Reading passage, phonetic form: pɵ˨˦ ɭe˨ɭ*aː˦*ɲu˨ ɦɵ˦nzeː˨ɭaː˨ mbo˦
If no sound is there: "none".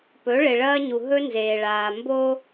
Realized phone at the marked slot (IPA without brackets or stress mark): ɐː˦